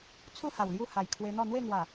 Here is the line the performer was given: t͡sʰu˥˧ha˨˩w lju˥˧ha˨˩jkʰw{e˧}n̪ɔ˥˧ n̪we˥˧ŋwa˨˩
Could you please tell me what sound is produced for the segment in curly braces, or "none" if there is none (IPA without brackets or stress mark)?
e˧